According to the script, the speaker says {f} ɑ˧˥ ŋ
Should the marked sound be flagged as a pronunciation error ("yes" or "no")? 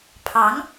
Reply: yes